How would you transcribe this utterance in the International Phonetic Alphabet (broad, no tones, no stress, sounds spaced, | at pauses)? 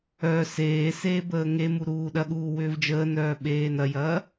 œ s eː s eː b əː ŋ e m u ɾ uː ɗ ɐ ɠ uː w ʏː v d͡ʒ əː n œː ɓ eː n ɐ j ɐː